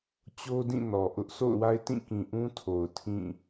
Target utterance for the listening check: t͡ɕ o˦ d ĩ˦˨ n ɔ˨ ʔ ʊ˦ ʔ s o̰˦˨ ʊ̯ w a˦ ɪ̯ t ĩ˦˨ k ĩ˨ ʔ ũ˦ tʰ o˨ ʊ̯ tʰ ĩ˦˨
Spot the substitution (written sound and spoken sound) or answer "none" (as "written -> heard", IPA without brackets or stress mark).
none